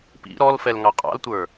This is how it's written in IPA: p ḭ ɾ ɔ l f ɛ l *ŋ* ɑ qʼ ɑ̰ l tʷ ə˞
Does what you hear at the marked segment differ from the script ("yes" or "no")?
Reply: no